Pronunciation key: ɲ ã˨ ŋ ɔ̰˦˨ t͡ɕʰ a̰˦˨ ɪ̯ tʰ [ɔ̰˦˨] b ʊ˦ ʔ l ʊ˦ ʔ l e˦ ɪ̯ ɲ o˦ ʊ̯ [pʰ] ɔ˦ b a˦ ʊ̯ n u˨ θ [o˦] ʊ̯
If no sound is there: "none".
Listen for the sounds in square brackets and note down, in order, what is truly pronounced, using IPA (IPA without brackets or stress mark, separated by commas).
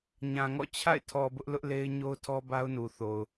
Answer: ɔ˨, tʰ, o˨